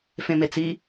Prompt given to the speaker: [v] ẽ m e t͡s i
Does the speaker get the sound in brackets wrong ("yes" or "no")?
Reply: yes